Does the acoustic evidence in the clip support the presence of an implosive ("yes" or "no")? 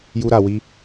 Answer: no